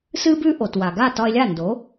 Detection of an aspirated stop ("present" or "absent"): absent